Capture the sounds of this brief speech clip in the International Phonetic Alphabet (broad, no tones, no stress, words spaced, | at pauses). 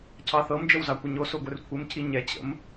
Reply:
cʰɑθɤmd͡ʒəw zɑkʷəɲoso ɡʷɘrkʷʰɘmcʰi ɲɛ t͡ɕə̰m